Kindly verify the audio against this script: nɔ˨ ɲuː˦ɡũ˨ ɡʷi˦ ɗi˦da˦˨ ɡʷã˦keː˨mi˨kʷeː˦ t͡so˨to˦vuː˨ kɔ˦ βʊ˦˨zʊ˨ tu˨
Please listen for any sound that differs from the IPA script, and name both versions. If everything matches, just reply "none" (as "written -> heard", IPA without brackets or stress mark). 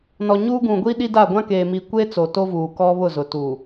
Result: none